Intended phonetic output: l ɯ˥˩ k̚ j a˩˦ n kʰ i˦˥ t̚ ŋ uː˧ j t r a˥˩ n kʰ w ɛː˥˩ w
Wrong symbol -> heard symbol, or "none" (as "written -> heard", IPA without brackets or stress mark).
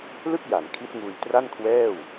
none